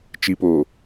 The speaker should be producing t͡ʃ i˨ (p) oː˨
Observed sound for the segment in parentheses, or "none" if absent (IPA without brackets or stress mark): p